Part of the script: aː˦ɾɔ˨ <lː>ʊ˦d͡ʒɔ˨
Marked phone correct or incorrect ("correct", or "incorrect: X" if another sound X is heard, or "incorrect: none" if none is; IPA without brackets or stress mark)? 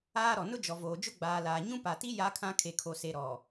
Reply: incorrect: n